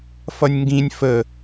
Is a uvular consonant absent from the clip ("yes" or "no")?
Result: yes